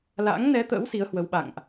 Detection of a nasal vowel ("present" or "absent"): absent